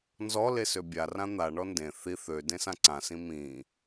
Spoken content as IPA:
nzɔle søbʲarã n̪aɳɔ ndẽ θi θø dẽsãǀãsĩ mĩ

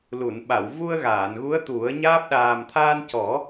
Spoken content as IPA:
lu˨˩˨nɓa˨˩˨w vu˧ə̯ɣaː˨˩˨nɣu˧˥ə̯ t̪u˨˩˦ə̯ɲaː˦˥p̚ ɗaː˨˩mt̪ʰaː˧ncɔ˨˩˦

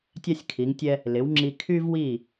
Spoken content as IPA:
tʲa˥sʲkʰi˩˥ŋtʲɛ˥ | lɪ˩˥wŋ͡ǁi˧ kʰy˥vwi˥˩

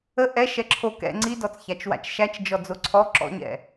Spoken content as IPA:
ə ʔɛ ʃɛǁʰo kɛ̰ ŋ͡ǀidɔt͡sçat͡ʃwa̰t͡ʃ ʃæt͡ʃ d͡ʒɔd͡zoǀʰɔ ǁɔ̰ɲɛ̰

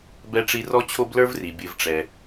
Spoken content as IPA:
bɛ˦ʈ͡ʂi˦ rɔ˦t͡ɕʰo˦blə˞˦vri˨ bʲɨ˨v ʈ͡ʂɛ˨

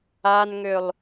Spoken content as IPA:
anŋølˠ

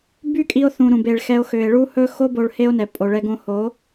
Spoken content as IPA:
by˦kʼi˧o̯θũ˨ ɾũ˧be˧ɭxɛ˦o̯ xø˨e̯ɭu˦hɵ˦ xo˦ bo˧ɭhe˦o̯nɛ˨ pʼo˨ɭɛ˧ ɡõ˧ho˨˦

